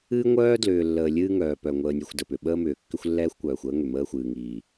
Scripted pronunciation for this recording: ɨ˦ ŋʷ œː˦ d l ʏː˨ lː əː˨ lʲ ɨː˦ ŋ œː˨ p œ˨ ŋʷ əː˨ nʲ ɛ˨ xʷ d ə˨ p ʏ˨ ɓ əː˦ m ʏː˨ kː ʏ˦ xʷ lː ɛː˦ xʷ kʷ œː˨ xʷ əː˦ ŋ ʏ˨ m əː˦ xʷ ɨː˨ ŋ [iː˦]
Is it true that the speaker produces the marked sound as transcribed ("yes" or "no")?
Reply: no